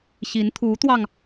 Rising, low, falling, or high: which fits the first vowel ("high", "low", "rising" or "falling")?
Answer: rising